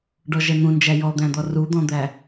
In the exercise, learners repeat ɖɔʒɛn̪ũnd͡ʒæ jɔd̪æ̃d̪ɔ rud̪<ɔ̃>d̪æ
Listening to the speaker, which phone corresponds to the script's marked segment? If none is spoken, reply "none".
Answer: ɔ̃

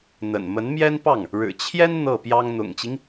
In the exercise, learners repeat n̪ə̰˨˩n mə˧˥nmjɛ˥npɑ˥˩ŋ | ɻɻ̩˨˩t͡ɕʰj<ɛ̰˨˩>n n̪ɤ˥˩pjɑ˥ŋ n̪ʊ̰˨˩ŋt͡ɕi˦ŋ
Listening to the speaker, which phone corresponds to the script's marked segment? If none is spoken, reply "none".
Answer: ɛ˥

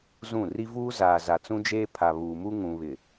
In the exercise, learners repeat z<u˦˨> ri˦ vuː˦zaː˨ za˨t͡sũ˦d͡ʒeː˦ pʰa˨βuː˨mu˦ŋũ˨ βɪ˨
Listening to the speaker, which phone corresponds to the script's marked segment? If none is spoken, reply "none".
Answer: ũ˦˨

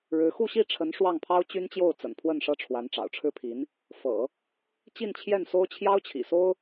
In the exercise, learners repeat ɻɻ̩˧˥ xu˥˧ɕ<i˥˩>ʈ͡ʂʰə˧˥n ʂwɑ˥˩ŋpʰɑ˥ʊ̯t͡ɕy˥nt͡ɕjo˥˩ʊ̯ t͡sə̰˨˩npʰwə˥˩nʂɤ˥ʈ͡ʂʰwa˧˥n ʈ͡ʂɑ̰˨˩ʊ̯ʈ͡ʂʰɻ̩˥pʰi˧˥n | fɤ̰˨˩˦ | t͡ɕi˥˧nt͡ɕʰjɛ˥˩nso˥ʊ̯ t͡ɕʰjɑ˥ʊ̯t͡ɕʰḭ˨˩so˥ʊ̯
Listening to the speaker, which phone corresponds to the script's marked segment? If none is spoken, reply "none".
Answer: i˥˩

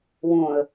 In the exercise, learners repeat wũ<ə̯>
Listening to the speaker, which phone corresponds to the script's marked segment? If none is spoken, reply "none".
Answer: ə̯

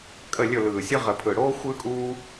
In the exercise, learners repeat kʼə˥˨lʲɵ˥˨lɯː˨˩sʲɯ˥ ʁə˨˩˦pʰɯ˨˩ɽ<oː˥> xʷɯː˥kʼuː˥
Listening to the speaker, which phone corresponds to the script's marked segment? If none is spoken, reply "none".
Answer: oː˥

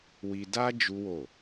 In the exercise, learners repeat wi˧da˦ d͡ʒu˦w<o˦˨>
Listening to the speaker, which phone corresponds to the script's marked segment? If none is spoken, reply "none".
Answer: o˦˨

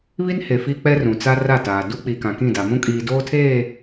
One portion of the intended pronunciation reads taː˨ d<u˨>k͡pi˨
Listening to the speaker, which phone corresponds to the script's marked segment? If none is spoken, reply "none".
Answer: u˦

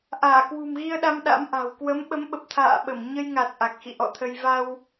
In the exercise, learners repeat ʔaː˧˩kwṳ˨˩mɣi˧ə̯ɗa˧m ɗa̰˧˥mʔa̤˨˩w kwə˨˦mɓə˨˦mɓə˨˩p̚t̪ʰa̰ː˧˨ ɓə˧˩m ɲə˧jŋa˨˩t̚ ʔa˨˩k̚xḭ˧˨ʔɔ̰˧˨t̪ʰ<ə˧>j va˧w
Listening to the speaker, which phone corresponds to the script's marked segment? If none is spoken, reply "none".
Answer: ə˧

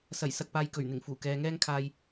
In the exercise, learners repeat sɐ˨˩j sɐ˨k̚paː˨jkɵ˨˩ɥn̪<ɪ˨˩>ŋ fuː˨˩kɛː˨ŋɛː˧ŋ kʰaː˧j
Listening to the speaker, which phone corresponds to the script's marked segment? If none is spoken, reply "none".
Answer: ɪ˨˩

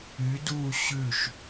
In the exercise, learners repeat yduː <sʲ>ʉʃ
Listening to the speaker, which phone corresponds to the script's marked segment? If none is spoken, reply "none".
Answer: ɕ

